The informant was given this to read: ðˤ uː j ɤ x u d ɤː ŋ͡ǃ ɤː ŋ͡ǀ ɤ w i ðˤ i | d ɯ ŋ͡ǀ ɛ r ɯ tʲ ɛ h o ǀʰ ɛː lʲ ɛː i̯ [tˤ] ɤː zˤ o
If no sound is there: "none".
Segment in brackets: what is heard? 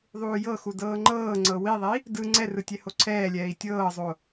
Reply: tʲ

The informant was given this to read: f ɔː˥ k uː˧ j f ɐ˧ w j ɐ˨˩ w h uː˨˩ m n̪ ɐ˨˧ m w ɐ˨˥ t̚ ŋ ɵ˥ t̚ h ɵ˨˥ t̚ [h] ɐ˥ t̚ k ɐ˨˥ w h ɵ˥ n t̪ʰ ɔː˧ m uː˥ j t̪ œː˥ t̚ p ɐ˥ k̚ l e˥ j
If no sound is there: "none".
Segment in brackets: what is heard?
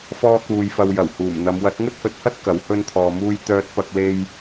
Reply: h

